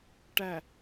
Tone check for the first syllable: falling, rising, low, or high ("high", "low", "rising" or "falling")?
low